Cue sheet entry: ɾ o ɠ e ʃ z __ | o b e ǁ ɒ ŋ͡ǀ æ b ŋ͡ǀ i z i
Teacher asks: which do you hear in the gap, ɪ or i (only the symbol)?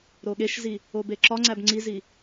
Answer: i